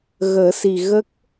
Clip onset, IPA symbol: ɣ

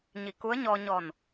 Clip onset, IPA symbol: ɲ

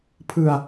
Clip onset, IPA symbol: pʰ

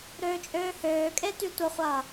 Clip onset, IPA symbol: ɾ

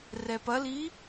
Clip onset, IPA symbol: r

